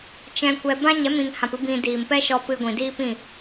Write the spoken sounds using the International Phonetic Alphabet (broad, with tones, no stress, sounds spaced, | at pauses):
t͡ʃ ɛ̃˧ kʷ ɛ˧ b ã˦ ɲ ɛ˨˦ m ĩ˨ ŋ h ã˨ p ɨ˧ b ĩ˧ d iː˨ m p ɛ˦ ʃ ɔ˧ p ɨ˧ ɡʷ ĩ˨ d iː˦ p ĩ˦˨